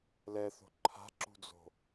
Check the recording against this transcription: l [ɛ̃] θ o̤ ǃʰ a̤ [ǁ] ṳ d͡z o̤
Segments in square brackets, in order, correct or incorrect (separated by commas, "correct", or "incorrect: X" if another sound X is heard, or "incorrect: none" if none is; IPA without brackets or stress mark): incorrect: ɛ, correct